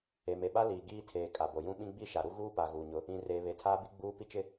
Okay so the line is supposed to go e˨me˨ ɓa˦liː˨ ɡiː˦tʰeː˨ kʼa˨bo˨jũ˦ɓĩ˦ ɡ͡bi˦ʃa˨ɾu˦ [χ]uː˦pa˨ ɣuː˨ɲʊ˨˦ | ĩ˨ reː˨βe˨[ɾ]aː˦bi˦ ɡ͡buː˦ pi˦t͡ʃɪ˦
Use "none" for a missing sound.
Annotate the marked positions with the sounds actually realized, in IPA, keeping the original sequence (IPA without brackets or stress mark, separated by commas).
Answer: ɣ, tʰ